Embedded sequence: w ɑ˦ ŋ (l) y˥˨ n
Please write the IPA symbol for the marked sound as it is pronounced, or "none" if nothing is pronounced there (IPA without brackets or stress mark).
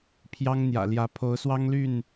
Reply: l